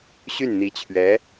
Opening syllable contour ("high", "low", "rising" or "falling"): falling